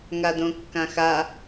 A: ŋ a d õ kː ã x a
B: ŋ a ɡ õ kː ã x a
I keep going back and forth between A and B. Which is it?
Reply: A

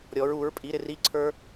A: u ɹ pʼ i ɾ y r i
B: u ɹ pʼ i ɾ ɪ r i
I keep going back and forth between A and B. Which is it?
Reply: B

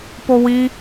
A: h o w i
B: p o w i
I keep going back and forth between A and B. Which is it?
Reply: B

